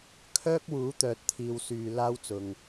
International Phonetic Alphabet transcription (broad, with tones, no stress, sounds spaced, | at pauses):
kʰ œː˥ k̚ w uː˨˥ t̪ œː˨ t̚ t̪ʰ iː˨ w s yː˧ l aː˥ w t͡s ʊ˨ ŋ